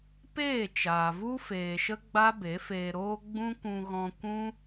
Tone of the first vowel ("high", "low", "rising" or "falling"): falling